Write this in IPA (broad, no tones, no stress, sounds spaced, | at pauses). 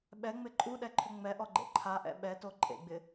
ɓ ɛ ŋ͡m ɪ ǃʼ u ɗ ɛ ǃʰ ʏ ŋ͡m ɛ ʔ ɔ ɡ͡ǃ ḛ ǃʰ a ʔ ɛ̰ ɓ ɛ t o ǃʼ ḛ ɡ͡b ɪ